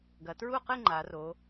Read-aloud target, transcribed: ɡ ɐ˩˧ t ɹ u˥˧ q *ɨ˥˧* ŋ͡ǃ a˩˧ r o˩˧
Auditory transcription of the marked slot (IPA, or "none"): ɨ˥˧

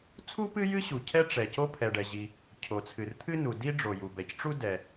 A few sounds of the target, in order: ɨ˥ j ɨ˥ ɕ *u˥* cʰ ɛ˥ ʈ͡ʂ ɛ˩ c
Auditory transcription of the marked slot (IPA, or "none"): u˩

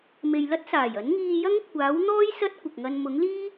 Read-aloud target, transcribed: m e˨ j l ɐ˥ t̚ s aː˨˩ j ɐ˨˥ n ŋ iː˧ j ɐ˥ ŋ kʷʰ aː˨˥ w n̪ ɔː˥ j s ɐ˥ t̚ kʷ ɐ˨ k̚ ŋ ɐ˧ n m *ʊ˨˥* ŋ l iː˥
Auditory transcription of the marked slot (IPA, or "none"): ʊ˨˥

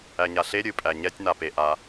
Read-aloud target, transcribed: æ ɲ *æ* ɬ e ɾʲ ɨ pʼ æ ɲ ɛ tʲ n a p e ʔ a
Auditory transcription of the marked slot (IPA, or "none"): a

